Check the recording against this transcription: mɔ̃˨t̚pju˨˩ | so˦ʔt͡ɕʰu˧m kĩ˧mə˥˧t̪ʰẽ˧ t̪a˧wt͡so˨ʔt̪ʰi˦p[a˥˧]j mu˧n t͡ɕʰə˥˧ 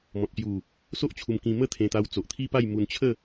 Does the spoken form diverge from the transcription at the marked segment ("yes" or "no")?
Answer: no